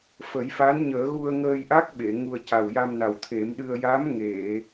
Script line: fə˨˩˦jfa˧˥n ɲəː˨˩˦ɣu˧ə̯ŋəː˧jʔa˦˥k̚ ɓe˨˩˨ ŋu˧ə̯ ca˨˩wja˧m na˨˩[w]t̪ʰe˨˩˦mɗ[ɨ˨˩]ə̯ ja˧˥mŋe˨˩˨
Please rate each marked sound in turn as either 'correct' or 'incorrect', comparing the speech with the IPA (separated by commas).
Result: correct, incorrect